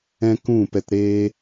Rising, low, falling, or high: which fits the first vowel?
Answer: high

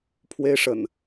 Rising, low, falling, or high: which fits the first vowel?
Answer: high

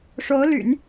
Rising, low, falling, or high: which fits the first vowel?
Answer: rising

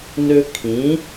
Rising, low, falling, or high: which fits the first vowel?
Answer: high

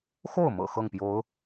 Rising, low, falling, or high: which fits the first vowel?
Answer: falling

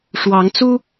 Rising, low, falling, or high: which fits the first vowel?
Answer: rising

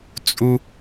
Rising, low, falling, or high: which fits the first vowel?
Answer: high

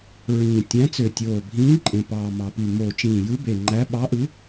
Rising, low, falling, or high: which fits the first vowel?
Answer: low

